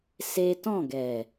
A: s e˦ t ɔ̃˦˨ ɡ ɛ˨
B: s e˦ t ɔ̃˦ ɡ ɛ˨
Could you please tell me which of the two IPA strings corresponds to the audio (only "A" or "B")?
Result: A